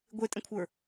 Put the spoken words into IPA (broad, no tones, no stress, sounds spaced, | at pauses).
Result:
ɡʷ e tʼ ə̃ kʷʰ ə˞